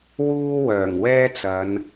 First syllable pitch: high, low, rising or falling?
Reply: high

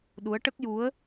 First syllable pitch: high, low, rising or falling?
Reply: rising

